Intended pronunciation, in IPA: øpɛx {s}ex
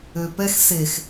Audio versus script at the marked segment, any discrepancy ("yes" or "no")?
no